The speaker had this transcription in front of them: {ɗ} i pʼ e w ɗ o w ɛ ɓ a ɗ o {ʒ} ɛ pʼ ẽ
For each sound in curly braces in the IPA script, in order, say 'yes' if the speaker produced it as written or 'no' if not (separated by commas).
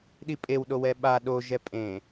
yes, yes